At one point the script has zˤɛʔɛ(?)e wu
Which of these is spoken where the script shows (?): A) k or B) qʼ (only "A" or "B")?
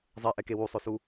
A